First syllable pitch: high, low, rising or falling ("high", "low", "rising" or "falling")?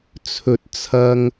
low